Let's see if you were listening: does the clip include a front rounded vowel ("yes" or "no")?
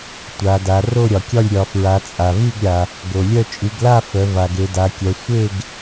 yes